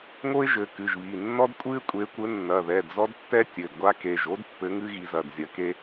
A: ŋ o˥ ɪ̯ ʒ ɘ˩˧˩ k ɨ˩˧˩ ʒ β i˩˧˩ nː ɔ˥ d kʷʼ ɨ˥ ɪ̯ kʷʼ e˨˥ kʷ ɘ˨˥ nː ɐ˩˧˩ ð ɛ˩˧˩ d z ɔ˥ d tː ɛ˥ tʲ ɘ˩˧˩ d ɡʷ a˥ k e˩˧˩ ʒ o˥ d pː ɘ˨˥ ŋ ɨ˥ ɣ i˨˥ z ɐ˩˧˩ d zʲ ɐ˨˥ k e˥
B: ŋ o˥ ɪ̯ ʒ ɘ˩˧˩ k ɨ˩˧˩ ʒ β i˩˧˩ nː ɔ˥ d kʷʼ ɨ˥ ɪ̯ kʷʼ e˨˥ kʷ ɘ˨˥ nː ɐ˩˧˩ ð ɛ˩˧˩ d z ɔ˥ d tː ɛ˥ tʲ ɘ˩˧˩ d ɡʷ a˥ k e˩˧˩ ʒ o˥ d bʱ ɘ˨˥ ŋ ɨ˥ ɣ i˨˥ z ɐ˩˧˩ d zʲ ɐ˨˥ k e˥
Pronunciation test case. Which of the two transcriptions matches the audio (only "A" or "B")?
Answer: A